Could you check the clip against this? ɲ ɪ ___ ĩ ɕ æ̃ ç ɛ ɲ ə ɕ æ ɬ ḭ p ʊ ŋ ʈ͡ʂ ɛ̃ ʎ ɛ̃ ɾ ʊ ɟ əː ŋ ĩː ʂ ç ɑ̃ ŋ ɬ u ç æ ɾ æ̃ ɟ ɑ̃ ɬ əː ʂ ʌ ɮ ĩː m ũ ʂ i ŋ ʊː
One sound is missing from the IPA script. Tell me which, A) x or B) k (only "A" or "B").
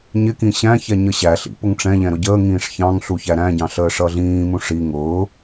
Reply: B